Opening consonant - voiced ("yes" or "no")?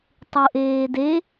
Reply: no